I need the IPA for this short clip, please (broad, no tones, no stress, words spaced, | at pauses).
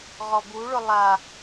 ʁɔbuɭʊ lˠa